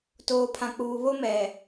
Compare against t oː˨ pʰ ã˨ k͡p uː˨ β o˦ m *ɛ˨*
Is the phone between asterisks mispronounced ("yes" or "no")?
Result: no